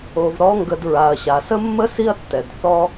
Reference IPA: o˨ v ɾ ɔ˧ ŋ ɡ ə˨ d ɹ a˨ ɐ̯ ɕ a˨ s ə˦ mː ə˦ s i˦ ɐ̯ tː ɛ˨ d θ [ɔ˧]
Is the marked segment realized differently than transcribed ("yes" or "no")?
no